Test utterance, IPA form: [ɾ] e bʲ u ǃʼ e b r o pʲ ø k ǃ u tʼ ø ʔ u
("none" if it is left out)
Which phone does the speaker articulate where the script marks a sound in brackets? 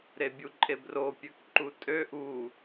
ɾ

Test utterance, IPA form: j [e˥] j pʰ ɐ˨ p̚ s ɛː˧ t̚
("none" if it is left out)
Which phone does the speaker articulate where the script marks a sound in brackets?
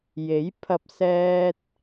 e˨˥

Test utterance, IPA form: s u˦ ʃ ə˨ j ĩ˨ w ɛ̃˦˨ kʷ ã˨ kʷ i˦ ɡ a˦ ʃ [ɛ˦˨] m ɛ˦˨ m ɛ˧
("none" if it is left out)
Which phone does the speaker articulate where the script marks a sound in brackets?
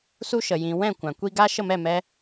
ə˦˨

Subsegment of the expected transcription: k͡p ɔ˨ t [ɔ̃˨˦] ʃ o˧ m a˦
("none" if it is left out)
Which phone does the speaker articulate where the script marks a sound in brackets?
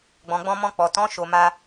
ɔ̃˨˦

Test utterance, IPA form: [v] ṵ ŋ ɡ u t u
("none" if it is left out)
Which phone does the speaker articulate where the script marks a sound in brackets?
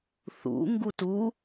θ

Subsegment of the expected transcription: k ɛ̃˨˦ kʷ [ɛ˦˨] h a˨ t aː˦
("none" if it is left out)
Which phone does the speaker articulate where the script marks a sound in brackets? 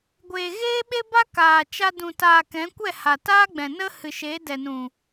ɛ˦˨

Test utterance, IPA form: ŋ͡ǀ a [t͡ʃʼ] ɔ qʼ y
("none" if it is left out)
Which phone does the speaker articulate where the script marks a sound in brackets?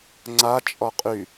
t͡ʃʼ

